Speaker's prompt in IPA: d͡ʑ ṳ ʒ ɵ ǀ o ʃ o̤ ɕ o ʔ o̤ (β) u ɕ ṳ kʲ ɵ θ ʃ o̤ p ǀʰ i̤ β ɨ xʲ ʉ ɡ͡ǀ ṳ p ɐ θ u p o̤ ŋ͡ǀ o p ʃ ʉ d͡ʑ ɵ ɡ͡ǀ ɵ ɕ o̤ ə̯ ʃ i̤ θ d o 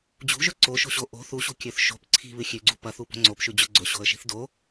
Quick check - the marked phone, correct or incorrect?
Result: incorrect: θ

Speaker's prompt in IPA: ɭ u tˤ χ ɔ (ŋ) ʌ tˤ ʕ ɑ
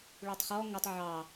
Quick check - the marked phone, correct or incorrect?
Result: correct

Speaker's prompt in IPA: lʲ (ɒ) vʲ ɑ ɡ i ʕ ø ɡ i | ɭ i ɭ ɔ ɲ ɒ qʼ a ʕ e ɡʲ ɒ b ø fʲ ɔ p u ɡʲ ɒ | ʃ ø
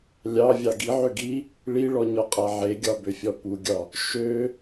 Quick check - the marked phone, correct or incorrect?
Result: incorrect: ɑ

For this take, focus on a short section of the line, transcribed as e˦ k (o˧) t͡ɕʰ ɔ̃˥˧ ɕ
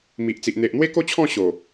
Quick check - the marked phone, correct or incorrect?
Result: incorrect: o˥˧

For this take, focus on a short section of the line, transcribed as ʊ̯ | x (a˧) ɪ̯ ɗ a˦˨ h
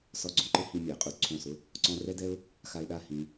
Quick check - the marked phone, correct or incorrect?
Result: correct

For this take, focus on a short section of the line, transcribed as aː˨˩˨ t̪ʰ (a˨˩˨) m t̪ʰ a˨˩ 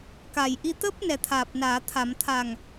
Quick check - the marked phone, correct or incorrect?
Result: correct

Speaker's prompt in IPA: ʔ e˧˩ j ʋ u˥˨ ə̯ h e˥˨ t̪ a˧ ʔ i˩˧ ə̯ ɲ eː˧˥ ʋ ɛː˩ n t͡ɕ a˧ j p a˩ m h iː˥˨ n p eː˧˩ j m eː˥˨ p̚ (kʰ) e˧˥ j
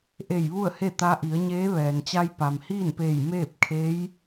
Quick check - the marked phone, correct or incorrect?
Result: correct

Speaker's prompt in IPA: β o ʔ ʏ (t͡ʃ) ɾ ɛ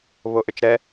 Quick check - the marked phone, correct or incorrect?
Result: correct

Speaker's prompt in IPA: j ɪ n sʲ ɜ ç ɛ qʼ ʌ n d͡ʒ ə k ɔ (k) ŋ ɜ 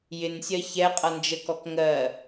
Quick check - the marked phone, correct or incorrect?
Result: correct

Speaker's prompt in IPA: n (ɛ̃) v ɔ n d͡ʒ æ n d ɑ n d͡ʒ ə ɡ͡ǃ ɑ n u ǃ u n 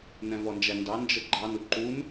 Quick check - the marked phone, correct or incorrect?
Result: correct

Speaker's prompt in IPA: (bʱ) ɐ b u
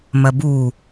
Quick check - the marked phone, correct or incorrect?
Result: incorrect: m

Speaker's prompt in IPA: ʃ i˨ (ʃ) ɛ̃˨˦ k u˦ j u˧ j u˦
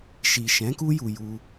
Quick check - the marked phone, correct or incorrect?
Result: correct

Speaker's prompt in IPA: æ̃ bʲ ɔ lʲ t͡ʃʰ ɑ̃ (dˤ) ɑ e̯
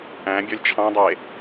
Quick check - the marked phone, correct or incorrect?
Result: correct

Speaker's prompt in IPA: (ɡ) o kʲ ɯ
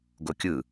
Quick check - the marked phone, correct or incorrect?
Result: correct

